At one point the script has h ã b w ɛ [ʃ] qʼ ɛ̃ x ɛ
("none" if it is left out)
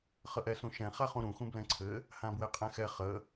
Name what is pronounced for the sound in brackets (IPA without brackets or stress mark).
none